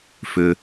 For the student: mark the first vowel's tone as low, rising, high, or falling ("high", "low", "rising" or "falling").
low